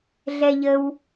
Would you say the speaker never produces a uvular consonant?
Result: yes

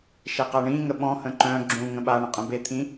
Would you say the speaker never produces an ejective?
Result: no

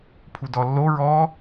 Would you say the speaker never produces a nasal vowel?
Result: yes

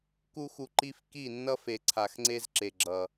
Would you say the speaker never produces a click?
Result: no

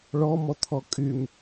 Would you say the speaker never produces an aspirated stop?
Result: no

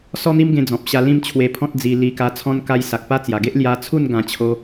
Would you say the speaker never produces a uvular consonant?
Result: yes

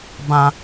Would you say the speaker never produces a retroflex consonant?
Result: yes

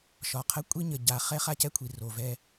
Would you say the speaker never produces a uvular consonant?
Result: no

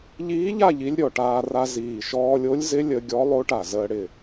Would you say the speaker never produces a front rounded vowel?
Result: yes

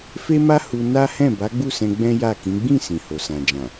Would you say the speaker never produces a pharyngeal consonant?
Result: yes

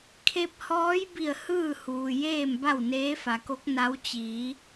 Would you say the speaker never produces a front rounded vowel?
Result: yes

